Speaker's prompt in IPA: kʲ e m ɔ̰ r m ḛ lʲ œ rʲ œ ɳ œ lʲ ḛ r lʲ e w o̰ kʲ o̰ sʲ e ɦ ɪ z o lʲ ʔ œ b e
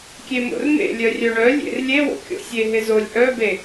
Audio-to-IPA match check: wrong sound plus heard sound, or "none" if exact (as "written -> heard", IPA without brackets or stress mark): ɔ̰ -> o̰